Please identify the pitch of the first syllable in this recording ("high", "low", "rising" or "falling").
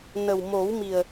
low